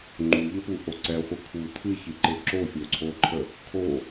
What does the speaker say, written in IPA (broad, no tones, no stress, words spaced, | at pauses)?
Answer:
ŋ͡ǃuʎəpuʔo ǀɛχʷɨ kʰu tʰɨçɨǃe ǁofʲoǀʰo ǃʰə | kʰo